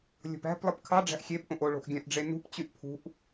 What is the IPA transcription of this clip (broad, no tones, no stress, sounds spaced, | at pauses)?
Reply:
lʲ o̤ p æ̤ p lˠ ɯ p kʰ ɑ ɖ͡ʐ æ̤ ʔ xʲ e p ʔ õ ʔ o ɭ o̤ ʔ ɡʲ æ̃ ʔ ɖ͡ʐ e n ṳ p t͡ɕ y ʔ pʰ ṳ ʔ